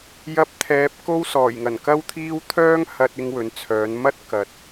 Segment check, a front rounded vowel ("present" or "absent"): present